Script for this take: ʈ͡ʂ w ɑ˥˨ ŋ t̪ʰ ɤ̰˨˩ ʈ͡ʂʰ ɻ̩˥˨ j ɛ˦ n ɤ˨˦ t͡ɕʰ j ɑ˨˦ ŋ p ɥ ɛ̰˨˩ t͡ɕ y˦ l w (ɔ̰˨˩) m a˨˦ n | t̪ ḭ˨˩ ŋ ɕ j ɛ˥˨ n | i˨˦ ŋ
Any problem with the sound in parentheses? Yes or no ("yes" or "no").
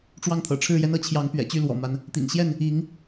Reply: no